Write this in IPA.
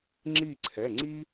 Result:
ŋ͡ǁ i˦˨ ǀʰ ɛ˩˧˩ ŋ͡ǀ i˥

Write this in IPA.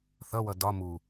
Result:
θ ʌ w ʌ d ɒ m u

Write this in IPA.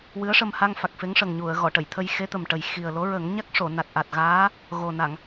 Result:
w ɨ˧˥ ə̯ ʂ ə˧ m h a˧ ŋ f a˨˩ k̚ f e˧˥ ŋ ʂ ə˨˩ ŋ ɲ u˨˩˨ ə̯ ɣ ɔ˨˩˨ ʈ ə˨˩˨ j t̪ʰ ə˧ j x e˧˥ t̪ ə˨˩ m ʈ ə˨˩ j x i˨˩ ə̯ l o˧˥ ɹ ə˨˩˦ ŋ ɲ a˦˥ k̚ ʂ o˨˩˨ n a˨˩ t̚ ʔ a˨˩ t̚ ɣ aː˧˥ | ɣ o˨˩ n a˨˩˨ ŋ

